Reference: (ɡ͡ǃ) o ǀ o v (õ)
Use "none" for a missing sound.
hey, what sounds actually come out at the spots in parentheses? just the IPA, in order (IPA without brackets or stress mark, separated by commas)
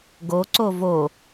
ɡ, o